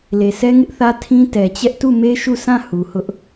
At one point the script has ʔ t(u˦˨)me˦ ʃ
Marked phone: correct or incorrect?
correct